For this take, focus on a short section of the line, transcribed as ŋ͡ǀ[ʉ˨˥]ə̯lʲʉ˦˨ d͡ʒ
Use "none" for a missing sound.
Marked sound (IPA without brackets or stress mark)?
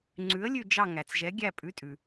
ʉ˨˥